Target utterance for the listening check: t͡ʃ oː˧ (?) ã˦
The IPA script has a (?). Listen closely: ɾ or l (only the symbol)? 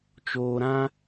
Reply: ɾ